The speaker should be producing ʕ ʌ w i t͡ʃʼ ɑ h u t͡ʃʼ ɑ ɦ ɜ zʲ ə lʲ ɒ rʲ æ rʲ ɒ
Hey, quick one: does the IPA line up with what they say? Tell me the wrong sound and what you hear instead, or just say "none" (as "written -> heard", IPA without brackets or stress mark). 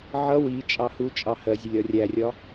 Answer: ɦ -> h